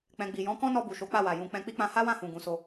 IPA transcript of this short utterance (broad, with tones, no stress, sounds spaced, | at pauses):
k͡p ɛ̃˨ ɡ͡b i˨ j ɔ̃˨˦ k ɔ̃˦ n ɔ˧ b u˨ ʃ o˨˦ k͡p a˦˨ w a˨ j ũ˨˦ k͡p ɛ̃˧ k͡p i˦ k͡p ã˧ h a˦ w ã˦˨ h ũ˨ ɡ ũ˨˦ s o˧